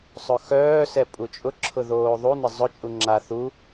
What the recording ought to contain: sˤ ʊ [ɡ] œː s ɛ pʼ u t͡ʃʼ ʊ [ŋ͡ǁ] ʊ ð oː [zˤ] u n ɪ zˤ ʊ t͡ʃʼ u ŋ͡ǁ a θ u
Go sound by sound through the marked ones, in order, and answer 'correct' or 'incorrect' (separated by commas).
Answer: incorrect, incorrect, incorrect